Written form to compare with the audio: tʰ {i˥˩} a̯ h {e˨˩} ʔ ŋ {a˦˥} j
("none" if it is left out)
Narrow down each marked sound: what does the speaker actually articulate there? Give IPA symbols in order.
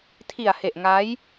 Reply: i˨˩, e˨˩, a˦˥

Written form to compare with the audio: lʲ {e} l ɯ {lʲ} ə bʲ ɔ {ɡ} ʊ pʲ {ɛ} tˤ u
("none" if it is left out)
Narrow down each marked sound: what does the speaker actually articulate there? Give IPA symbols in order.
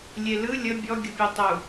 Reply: e, lʲ, ɡʲ, e

